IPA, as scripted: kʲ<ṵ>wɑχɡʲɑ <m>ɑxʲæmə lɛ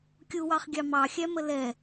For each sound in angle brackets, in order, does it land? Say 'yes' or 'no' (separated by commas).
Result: no, yes